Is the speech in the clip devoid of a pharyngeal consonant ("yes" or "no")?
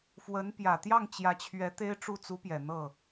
yes